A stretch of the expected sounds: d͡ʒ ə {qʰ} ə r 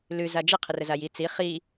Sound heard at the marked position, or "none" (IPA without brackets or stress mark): qʰ